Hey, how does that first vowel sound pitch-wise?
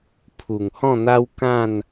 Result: low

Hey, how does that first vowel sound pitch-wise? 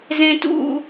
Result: low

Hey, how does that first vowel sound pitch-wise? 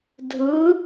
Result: rising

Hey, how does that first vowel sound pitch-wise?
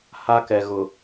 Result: high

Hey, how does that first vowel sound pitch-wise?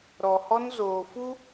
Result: low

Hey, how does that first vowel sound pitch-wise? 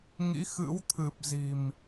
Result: rising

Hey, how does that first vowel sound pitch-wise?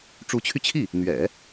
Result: rising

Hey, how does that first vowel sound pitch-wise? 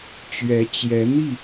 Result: rising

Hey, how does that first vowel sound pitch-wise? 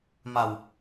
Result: low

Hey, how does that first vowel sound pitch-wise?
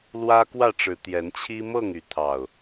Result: high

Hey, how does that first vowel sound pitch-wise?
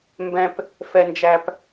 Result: low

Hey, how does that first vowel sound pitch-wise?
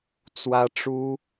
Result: high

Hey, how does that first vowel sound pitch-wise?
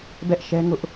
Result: high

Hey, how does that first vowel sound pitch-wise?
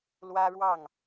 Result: high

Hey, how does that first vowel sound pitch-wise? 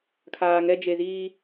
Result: low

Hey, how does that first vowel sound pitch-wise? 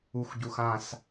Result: low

